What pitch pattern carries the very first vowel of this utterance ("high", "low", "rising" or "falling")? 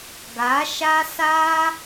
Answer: rising